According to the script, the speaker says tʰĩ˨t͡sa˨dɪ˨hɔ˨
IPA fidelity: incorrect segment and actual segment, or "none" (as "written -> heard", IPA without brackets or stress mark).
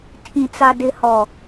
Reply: none